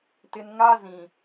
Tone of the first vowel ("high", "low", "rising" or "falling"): low